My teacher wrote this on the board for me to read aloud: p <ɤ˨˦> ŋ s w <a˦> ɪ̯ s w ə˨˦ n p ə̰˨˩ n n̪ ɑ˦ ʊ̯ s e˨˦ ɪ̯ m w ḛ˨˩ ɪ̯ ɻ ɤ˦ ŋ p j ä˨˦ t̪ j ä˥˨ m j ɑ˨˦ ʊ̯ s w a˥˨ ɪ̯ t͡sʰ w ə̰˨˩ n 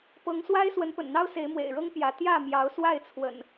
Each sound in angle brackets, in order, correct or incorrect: correct, correct

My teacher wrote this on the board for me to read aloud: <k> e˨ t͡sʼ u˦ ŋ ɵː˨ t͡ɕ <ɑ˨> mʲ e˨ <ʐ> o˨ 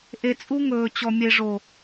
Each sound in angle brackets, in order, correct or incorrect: incorrect: ʔ, incorrect: ɔ˨, correct

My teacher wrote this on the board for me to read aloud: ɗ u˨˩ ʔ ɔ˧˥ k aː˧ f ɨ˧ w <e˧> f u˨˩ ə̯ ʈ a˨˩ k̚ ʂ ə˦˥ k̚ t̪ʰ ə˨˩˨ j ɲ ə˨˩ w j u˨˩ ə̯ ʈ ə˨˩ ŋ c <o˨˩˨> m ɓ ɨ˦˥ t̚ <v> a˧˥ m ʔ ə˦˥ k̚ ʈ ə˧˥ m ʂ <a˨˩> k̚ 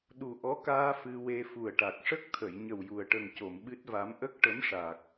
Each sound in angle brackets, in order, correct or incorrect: correct, correct, correct, correct

